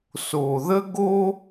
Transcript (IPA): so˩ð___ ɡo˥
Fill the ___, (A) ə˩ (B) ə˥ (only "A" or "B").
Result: B